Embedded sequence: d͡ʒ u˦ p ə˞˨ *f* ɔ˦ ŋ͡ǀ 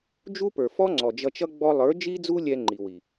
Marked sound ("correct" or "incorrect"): correct